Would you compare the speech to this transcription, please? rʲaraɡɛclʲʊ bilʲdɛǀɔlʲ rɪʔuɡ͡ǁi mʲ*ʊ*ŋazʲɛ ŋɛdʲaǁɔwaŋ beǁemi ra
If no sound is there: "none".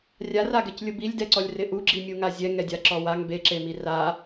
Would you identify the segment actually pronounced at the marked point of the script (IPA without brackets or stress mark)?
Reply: u